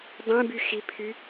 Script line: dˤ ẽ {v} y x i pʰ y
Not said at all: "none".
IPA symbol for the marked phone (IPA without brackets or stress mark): b